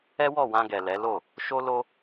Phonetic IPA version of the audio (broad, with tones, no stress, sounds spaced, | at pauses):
ɛ˦ w ɔ˦˨ w ã˧ ɡ ɛ˨ l ɛ˨˦ l o˦˨ | ʃ o˦ l o˦